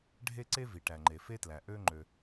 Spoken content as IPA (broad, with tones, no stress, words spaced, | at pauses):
ɖʱe˥ǀe˥vi˩ʈæ˩ ŋ͡ǃe˩fe˥tlæ˩ ʔø˥ ŋ͡ǃø˩